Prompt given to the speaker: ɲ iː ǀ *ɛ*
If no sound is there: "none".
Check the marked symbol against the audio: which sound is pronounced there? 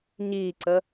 ə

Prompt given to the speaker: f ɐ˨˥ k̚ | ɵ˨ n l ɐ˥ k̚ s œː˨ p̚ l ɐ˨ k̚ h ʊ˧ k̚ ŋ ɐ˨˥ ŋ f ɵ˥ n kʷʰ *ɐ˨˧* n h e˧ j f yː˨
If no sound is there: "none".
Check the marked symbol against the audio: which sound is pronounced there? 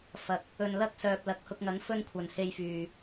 ɐ˨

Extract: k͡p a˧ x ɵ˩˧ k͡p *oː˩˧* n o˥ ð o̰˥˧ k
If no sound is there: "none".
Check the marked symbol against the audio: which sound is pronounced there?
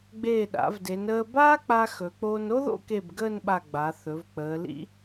oː˧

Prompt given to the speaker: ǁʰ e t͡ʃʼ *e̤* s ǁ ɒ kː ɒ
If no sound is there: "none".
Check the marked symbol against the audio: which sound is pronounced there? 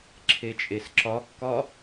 e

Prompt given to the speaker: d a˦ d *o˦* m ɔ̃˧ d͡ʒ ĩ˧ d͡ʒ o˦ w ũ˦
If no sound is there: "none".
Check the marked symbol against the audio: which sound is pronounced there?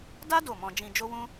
o˦˨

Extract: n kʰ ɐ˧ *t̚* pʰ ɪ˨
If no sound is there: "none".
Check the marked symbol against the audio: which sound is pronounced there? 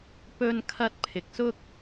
t̚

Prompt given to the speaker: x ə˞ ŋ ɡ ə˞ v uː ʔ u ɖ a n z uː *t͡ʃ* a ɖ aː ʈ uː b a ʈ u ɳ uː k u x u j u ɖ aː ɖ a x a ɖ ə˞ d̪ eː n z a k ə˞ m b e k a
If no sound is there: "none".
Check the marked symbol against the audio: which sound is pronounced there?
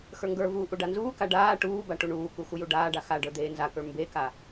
k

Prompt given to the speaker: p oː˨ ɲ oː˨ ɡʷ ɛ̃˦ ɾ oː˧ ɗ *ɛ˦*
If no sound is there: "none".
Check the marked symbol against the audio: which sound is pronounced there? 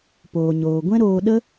ə˦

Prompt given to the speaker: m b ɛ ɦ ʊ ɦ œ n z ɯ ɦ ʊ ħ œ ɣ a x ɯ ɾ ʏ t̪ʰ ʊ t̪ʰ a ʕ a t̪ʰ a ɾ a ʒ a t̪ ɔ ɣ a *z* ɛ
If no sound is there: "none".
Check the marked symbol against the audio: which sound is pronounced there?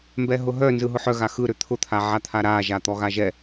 ʒ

